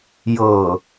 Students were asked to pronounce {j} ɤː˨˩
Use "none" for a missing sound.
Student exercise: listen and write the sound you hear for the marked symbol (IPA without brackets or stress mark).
j